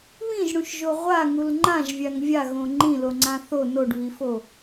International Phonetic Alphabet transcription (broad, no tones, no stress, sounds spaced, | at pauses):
β ĩ ʒ ɽ ũ ʃ ʒ o ʁʷ a ŋ u l ŋ͡ǃ ã ʒ vʲ a ŋ vʲ a ɣ õ ŋ͡ǃ ĩ l o ŋ͡ǀ ã θ o n o ɖ β i f o